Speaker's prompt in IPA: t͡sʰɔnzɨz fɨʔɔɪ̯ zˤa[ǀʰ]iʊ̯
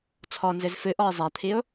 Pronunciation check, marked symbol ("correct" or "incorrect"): incorrect